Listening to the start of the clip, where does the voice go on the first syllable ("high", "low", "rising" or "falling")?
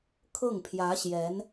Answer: falling